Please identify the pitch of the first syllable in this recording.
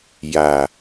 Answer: low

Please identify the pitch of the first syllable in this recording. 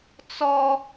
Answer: high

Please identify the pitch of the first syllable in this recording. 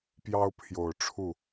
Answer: high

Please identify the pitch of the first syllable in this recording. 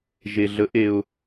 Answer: low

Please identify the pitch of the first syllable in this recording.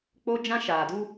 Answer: high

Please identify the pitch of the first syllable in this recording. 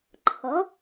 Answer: rising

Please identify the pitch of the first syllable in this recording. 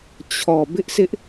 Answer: low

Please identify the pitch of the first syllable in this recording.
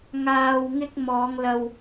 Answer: low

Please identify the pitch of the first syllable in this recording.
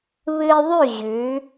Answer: high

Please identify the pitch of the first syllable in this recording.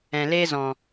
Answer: low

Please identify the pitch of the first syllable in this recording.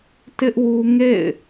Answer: high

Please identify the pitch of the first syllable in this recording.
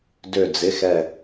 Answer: falling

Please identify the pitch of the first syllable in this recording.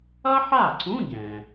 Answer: high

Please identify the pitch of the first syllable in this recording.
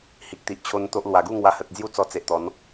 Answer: low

